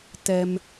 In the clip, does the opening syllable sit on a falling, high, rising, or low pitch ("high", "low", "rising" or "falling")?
high